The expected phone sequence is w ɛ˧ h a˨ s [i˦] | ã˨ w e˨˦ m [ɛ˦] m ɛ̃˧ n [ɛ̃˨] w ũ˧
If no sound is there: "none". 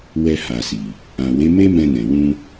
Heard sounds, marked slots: i˨, e˦, ɛ̃˨

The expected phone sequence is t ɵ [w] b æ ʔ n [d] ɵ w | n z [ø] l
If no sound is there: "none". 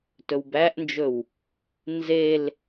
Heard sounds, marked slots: w, d͡ʒ, e

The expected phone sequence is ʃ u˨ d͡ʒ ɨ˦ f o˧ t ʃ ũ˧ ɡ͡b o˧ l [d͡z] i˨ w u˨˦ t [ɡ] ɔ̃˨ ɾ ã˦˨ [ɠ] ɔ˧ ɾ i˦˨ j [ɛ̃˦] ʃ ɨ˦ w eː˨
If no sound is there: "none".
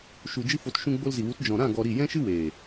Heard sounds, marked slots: z, d͡ʒ, ɡ, ɛ̃˦

